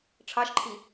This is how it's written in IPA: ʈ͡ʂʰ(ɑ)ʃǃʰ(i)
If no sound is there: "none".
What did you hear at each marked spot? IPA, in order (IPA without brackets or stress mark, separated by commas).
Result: ɑ, i